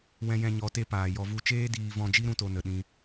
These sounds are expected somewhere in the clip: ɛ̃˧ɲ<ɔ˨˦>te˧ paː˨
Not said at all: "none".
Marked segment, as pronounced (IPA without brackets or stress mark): ɔ˨˦